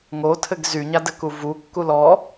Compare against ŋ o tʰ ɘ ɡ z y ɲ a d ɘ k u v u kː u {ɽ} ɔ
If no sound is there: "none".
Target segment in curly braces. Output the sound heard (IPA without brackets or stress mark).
l